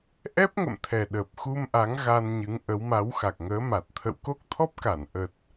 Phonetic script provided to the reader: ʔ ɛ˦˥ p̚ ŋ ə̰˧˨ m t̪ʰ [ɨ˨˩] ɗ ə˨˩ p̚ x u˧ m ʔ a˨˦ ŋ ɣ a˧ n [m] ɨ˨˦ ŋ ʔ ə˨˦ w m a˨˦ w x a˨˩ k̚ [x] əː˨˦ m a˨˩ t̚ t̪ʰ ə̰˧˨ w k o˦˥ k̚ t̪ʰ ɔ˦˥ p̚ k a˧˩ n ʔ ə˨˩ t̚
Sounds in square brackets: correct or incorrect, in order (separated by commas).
incorrect, incorrect, incorrect